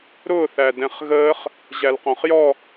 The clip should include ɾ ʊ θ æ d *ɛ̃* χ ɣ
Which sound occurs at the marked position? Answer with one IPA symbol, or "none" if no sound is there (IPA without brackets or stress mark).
ɛ̃